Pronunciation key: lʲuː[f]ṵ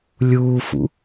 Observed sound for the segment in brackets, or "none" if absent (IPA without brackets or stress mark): f